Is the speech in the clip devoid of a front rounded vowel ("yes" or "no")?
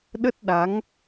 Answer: yes